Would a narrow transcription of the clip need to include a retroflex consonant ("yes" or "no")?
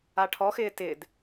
yes